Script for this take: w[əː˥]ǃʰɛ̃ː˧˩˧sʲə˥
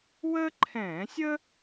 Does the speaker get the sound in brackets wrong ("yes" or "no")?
no